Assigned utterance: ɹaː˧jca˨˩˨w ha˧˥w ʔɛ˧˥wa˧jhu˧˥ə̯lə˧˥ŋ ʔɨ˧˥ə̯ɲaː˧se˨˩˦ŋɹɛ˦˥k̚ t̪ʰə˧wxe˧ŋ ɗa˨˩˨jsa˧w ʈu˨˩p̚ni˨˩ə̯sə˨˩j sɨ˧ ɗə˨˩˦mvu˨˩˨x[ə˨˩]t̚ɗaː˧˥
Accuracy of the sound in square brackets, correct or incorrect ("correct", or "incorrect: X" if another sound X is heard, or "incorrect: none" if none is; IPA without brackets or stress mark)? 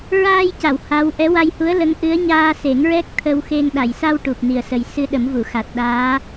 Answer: incorrect: a˨˩